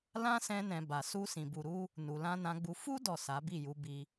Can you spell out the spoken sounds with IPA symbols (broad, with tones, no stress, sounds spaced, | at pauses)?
l ã˦ s ɛ̃˧ n ɛ̃˨ b a˨ s u˧ s ĩ˨ b u˨ ɾ u˧ | n u˨ l ã˧ n ã˧ ɡ͡b u˧ f u˦ d ɔ˦˨ s a˨˦ b i˦˨ j u˨˦ b i˧